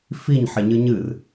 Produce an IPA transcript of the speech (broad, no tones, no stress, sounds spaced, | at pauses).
f i ɲ ħ e ɲ ɨ ɲ ɨ r